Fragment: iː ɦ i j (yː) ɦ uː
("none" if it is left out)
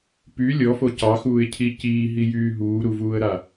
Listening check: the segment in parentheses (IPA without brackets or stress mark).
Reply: yː